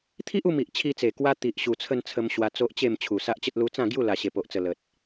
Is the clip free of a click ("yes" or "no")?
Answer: yes